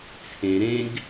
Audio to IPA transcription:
t͡sʰẽ ɾẽɡ

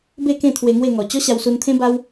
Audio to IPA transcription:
be˥˧kẽ˥˧ t̪ʰwe˧ŋwe˥˧ŋɔ˨˩ t͡ɕɔ˦ɕa˧wsu˧nt̪ʰẽ˦ ba˦w

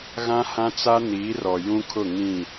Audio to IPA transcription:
ɣã˦hã˦t͡sa˦ niː˨˦rɔ˨ jũ˦kʰʊ˦˨ŋĩ˦˨

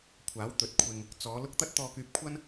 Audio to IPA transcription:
kʷʰaː˨˥w t̪ɵ˨t̚kʷʰɪ˧ŋ | t͡sɔː˨˧lʊ˥k̚ t̪ɐ˥t̚t̪ɔː˧kyː˧p̚kʷʰɐ˥n

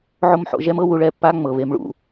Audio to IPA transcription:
ʕo˦mħo̰˧ʒɛ˦mɤ˦ wu˧ɭɛ˦˨pːa˦ ŋ͡mɤ˨βe˧m ɭṵ˧

